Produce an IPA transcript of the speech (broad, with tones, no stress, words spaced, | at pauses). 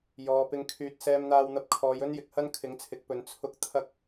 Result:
jɔː˨˧pɪ˧ŋkʰyː˧t̚ sɛː˧mn̪aː˧wn̪ɐ˧p̚ kʰɔː˨˧jɵ˥njɪ˨k̚hɐ˥n kʰɪ˨˥ŋt͡sʰɪ˨˥k̚pɵ˨˧n t͡sʰʊ˥k̚ t̪ʰɐ˥k̚